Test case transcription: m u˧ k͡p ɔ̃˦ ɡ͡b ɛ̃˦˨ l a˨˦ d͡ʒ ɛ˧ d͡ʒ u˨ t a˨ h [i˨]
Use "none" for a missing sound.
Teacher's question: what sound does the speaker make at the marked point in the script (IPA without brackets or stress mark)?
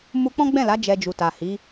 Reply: i˨˦